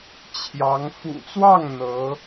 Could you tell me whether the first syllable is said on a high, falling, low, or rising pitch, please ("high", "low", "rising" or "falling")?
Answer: rising